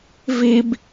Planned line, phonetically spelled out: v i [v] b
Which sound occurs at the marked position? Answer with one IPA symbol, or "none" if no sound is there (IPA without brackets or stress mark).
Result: none